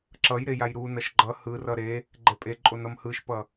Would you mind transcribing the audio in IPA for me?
ǁʌj ɾejajɾunʌʃ ɡ͡ǃʌ hɯrʌ ɾe | ɡ͡ǃɛpʼeǃʼon ʌmhɯʃpʌ

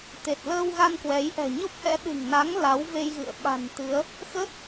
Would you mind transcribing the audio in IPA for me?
t̪e˨˩t̚ləː˧wɣa˧n kwɛ˨˦j ʔɛ̤˨˩ɲo˦˥p̚ʔɛ̰˧˥ ɗɨ̤˨˩ŋna˨˦ŋ la˨˦wve˧jɣɨ̰˧˨ə̯ ɓa̤˨˩nt̪ɨ˨˦ə̯ | xə˦˥t̚

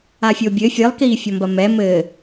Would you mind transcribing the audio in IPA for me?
afʲobʲɘ fʲɨlˠkiːfʲɔmbɐ mɛ mɘː

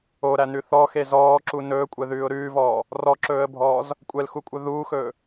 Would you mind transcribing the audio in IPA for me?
oɾænʉ θɔxe zɔːǁu nɵːkʷʼɛðʉːʊ̯ ɾʉːvɔː | rɔǁɵːə̯bʱɔːz | kʷʼɛlxukʷʼœ ðuːxɵː

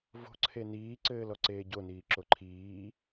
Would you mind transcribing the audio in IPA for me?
vo̤ǀʰe niːǀɘːl ɔǀeːɟoniː ǁoǃʰiː

